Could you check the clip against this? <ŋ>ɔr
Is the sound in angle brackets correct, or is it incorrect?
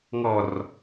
correct